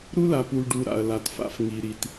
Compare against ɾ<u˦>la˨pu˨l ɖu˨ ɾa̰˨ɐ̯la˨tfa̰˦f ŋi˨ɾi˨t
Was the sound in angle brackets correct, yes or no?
yes